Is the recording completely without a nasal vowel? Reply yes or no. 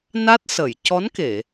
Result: yes